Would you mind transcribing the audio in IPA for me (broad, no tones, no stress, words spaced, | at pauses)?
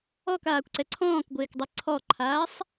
ɔkaːkʷǀɛ ǀʰɔ̃ːkɡʷɪːkdˤɛ ǀʰɔǃʰaːsˤ